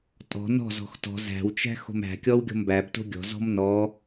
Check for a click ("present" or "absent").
absent